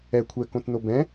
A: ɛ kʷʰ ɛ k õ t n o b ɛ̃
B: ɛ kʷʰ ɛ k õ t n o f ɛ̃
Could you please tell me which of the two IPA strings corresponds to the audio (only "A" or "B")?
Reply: A